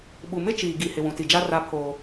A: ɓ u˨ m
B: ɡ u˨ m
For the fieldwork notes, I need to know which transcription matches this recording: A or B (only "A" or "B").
A